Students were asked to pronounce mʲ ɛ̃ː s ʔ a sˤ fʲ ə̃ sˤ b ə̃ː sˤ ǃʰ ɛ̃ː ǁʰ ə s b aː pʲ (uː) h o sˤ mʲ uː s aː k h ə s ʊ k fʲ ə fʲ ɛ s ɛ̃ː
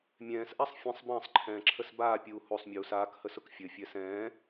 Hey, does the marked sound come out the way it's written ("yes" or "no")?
yes